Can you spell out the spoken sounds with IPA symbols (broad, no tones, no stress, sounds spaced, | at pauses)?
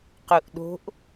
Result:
q u ʔ ɗ o̤ ʔ